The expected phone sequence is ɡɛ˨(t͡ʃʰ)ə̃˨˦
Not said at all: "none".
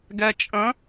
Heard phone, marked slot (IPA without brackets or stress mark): t͡ʃʼ